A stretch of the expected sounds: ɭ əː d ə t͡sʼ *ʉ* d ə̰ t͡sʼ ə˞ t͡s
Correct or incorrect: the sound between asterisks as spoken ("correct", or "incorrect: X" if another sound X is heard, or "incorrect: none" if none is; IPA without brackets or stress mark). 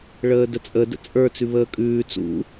incorrect: ə